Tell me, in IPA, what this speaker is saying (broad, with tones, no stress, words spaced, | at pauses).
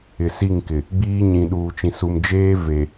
ɪ˨si˦˨ŋkɪ˨ | ɡ͡biː˦ ɲĩ˨ɗuː˨t͡ʃĩ˨ su˨md͡ʒeː˦ ve˨